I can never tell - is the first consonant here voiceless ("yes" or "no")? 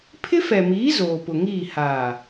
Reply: yes